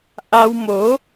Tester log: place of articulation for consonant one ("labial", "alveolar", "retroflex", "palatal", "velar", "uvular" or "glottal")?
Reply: glottal